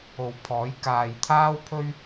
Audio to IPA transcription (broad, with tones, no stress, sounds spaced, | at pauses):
o˨ w pʰ ɔː˨˥ j k aː˨ j t̪ʰ aː˥ w pʰ ɵ˥ ɥ